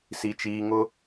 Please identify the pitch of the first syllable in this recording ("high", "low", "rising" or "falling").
low